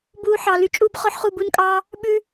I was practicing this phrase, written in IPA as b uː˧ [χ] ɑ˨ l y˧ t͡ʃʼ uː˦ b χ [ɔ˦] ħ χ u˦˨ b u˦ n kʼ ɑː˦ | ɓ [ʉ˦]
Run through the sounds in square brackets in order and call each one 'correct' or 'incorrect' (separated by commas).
incorrect, correct, correct